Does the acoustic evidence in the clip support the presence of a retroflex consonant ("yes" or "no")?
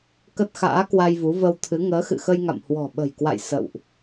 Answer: no